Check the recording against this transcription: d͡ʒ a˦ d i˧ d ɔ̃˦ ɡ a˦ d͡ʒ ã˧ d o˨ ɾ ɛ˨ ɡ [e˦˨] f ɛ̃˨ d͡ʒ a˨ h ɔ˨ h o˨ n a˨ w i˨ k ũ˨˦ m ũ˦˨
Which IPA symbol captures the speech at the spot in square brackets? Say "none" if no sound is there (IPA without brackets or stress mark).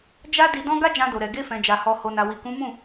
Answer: e˧